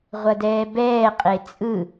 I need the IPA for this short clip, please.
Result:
ʁʷ ʌ d ɛː b ɛː qʼ e t͡sʼ ɯ

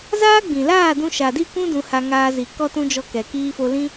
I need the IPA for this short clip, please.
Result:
z aː˦ ɡ͡b ĩ˨ l aː˦˨ d ũ˧ ʃ a˨ d i˦˨ kʷ ũ˦ d ũ˧ h a˧ ŋ aː˧ z i˨ k ɔ˦ t ũ˦ d͡ʒ ɔ˧ k ɛ˨ k iː˧ f o˧ l ĩ˦

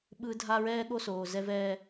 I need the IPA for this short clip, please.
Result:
ɓ ɯ˦ dʱ a˦ ɹ ɛː˦ ɠ o˦ s oː˨ z ɛ˦ v ɛː˦

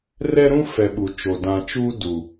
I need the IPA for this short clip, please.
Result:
r ɛ˦ ɾ ũ˦ f ɛ˨ ɓ u˨ t͡ʃ o˨ d ã˨ t͡ʃ u˦ d u˨

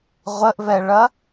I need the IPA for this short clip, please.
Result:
ʁʷ ə ʔ v ɛ ɭ ɐ

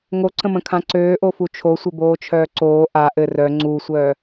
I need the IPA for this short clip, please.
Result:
ŋ o ǀ ə̃ m ə̃ kʰ ã ǀ øː ʔ o f u t͡ʃʰ o sʷ ɘ b oː t͡ʃʰ œː ǀ oː ʔ a ʔ ɘ r œ ŋ͡ǀ u sʷ œː

